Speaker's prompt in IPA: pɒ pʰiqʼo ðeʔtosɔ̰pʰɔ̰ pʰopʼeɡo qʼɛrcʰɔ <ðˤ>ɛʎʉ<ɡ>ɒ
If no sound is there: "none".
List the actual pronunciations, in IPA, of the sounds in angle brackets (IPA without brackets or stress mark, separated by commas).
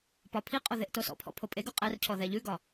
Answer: ð, ɡ